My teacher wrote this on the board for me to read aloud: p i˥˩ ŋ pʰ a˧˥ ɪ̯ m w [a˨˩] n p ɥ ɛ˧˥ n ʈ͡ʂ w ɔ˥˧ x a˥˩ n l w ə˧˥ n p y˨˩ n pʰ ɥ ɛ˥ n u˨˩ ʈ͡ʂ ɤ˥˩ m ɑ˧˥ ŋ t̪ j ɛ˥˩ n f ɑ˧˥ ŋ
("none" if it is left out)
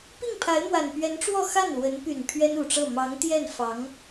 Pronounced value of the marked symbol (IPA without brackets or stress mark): a˨˩